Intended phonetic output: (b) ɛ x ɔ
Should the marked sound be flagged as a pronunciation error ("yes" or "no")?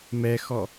yes